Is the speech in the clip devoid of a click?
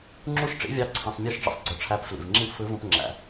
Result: no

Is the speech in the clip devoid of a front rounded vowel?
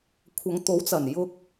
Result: yes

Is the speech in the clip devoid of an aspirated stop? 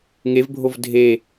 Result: yes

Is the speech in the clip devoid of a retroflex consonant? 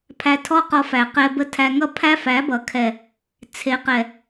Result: yes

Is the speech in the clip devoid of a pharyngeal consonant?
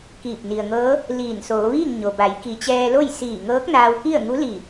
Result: yes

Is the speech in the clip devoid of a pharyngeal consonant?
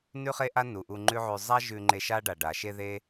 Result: no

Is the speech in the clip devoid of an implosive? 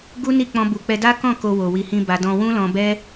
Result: yes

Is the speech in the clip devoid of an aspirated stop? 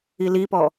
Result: yes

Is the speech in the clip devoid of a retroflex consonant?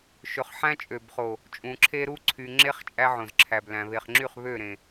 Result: yes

